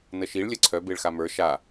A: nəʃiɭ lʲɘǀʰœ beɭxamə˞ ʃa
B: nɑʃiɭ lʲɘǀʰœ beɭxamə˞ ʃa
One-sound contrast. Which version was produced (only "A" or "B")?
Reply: A